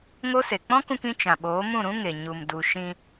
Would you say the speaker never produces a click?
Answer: yes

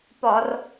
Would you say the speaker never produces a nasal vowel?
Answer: yes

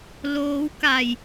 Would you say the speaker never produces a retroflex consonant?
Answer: yes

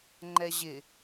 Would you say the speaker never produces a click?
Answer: no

